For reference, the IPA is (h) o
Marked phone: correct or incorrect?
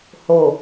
correct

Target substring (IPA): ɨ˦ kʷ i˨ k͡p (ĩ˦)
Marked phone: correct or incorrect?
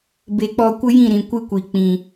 incorrect: ĩ˨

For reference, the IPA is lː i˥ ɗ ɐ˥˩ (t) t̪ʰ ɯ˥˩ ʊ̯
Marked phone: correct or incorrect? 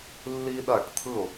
incorrect: ʈ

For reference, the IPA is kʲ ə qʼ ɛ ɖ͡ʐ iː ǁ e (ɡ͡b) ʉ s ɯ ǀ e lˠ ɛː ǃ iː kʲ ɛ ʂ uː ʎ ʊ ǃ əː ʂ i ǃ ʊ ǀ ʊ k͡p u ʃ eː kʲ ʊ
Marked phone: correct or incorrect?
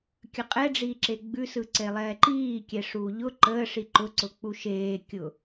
correct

